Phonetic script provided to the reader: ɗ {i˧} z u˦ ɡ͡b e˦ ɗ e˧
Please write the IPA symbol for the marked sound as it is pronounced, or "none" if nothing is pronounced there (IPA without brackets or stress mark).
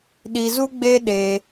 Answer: i˧